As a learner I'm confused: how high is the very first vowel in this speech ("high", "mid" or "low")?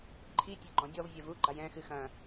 high